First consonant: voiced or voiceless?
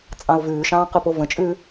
voiceless